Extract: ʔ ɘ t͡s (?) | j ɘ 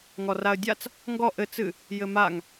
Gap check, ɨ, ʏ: ɨ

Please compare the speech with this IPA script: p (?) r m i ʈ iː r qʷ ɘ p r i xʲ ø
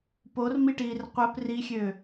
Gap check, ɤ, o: o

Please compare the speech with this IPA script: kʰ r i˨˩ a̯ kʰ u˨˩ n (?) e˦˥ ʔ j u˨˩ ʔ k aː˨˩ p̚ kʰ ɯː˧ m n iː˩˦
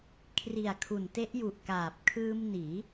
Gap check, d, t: t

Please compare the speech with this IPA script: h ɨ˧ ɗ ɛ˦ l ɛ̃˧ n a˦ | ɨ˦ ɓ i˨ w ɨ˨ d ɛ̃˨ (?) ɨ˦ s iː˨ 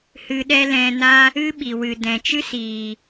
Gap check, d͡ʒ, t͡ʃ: t͡ʃ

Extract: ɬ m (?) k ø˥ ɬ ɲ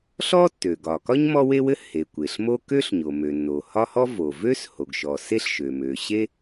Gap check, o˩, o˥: o˥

